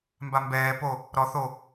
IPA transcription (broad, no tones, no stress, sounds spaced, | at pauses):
m b a m b ɛː p o | ɾ ɔ θ o